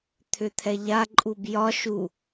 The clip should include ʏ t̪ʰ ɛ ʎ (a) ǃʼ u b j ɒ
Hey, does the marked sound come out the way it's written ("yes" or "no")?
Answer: yes